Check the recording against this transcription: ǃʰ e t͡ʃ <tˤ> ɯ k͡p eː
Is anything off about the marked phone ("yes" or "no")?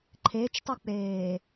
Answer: no